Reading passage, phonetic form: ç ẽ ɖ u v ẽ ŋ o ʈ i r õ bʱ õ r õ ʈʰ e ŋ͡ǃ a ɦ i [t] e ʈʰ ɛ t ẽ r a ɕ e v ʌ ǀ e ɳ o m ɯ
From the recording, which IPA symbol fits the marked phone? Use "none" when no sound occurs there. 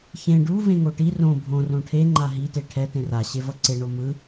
t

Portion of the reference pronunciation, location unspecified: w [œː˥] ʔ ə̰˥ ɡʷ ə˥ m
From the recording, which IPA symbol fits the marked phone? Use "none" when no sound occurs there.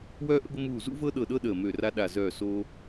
œː˥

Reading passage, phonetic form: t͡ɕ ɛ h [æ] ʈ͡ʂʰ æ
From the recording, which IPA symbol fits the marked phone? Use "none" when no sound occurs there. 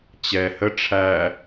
ə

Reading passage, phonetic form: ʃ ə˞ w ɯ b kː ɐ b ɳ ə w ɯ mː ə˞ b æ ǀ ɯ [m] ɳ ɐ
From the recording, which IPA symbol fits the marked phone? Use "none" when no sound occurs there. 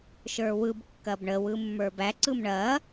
m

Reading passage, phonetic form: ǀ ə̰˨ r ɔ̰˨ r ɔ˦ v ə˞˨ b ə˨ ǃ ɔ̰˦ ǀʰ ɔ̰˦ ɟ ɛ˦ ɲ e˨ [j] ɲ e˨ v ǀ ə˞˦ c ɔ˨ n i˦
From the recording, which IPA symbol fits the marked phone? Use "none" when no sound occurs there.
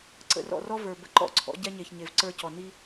ç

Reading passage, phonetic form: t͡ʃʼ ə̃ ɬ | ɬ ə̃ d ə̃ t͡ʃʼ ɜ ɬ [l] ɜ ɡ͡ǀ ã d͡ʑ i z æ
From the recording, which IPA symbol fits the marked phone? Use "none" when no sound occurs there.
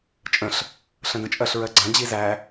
ɹ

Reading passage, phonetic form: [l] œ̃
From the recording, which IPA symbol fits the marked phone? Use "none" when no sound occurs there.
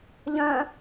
ʎ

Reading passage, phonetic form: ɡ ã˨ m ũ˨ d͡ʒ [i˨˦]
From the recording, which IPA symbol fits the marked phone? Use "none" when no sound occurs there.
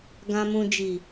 i˨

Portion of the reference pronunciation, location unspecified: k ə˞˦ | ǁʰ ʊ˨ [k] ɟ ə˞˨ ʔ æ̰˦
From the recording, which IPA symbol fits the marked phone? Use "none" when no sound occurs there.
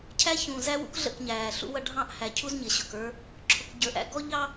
k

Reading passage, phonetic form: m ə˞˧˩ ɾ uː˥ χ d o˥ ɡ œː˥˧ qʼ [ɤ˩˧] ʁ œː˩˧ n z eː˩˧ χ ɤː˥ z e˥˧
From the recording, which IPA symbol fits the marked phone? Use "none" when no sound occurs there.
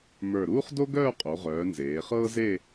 o˩˧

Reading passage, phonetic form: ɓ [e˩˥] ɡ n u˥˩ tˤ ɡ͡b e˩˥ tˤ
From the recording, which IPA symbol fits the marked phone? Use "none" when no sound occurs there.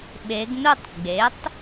e˩˧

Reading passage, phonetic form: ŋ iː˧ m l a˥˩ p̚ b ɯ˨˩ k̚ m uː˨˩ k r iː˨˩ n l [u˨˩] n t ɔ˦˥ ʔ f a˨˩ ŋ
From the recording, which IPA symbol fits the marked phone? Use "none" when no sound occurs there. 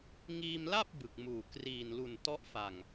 u˨˩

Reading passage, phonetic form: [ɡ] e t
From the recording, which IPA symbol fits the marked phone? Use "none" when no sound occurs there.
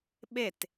ɓ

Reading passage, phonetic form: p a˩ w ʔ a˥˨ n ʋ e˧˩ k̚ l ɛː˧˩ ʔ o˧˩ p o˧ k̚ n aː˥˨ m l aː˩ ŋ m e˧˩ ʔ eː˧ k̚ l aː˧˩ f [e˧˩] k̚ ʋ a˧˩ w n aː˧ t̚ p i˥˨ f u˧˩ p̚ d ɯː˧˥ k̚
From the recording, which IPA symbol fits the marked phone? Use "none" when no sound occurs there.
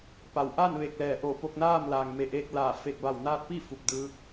e˧˩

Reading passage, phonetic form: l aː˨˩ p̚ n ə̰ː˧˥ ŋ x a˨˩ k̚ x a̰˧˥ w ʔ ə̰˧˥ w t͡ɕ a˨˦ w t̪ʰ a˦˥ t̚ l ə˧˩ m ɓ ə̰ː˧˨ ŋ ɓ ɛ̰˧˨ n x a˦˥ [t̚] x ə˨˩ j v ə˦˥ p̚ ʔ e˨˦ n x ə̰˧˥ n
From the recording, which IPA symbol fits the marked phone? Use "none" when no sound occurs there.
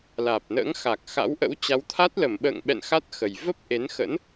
t̚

